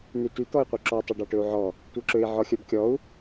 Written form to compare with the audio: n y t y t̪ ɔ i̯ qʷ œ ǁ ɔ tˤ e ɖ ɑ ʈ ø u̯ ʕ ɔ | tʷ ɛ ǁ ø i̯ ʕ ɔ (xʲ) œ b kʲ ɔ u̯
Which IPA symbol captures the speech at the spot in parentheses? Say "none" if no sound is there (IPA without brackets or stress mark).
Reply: xʲ